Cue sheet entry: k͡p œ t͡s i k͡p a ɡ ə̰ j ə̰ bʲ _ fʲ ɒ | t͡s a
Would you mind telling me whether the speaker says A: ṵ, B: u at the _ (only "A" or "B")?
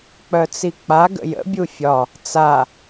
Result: B